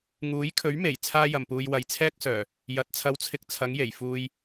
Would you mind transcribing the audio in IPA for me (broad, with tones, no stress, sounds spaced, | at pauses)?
ŋ uː˨˥ j kʰ ɵ˨˥ ɥ m e˨˩ j t͡sʰ aː˥ j ɐ˨ m p uː˧ j w ɐ˨ j t͡sʰ ɛː˥ k̚ s œː˨˩ | j ɐ˨˥ t̚ t͡sʰ ɐ˧ w t͡sʰ ɪ˧ k̚ t͡sʰ ɐ˨˥ ŋ j e˨˩ j f uː˧ j